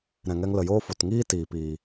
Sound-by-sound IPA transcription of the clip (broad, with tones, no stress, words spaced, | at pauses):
ɾɛ̃˨ŋɛ˧ŋlə˨joː˦ fo˨tŋiː˦ tiː˨piː˨